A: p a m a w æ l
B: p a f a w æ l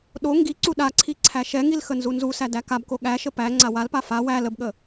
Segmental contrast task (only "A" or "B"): B